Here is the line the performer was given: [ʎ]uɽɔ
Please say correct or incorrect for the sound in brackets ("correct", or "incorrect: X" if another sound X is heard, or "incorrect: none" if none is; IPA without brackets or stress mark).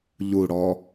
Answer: correct